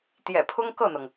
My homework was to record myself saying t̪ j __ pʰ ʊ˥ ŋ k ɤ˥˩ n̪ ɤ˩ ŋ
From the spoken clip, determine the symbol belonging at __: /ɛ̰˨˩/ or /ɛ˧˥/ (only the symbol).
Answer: ɛ̰˨˩